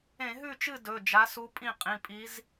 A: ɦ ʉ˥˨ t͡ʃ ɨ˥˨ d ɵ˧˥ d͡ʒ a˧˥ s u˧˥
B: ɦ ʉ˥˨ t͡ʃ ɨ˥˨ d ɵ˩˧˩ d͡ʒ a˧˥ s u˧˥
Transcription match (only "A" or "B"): B